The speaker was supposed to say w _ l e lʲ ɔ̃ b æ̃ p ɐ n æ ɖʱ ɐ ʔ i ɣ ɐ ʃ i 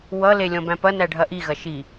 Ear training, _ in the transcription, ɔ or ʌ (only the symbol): ʌ